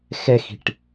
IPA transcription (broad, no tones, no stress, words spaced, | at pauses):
xɛxi̤ʈ